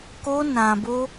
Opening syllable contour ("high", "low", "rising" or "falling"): high